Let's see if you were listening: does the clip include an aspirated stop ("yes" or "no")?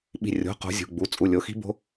no